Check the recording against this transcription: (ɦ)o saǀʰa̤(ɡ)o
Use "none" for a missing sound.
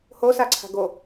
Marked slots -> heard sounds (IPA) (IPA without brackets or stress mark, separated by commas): h, ɡ